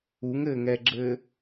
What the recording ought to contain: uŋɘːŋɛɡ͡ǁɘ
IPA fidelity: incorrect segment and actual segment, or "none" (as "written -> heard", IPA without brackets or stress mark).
none